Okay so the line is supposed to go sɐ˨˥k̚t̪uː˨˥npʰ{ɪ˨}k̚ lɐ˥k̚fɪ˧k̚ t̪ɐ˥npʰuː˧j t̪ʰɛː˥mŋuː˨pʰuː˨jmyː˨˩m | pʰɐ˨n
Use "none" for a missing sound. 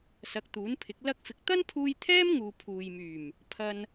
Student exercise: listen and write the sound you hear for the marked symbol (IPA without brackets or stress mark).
ɪ˨˥